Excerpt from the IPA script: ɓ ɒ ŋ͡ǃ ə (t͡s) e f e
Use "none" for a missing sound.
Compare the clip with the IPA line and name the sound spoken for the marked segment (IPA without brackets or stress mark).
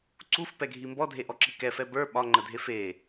dʱ